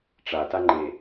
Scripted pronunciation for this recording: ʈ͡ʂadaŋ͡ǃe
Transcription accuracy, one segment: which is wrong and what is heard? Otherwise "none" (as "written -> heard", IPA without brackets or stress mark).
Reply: d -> t